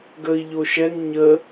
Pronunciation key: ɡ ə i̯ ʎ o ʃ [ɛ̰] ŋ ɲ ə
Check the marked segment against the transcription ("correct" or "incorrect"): incorrect